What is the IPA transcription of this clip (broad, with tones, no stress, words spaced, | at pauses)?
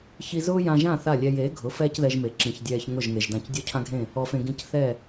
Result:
çi˧zʊː˥jã˧ʒã˥˩ θa˥˩lʲɛ˧j e˩˥ɡʱʊ˩˥ fɛː˥cðɛ˧ʒme˩ ǁĩ˩çdʲɛː˧ç ŋʊ˥˩ʒŋe˩ʒdã˧c dʲɔ˥cʰã˥ɡʱẽ˥˩ | ɔ˧fẽ˧ɡĩ˥˩c θɛ˥˩